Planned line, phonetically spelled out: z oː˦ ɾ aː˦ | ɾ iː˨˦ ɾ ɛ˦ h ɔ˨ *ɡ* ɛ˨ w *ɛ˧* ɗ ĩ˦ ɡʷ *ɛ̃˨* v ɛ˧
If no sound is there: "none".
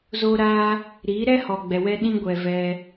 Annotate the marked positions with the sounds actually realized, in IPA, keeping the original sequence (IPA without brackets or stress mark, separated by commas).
ɡ͡b, ɛ˧, ɛ˨